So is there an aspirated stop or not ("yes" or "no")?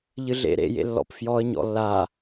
no